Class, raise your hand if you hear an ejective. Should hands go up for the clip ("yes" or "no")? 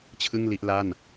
no